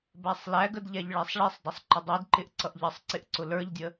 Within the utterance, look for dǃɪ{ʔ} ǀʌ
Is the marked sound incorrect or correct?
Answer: correct